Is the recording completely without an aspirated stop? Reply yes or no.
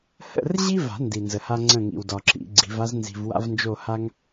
yes